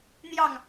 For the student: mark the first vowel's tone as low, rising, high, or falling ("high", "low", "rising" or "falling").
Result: falling